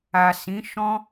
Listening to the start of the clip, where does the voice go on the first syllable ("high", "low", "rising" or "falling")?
low